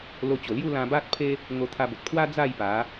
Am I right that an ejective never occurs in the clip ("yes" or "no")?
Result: yes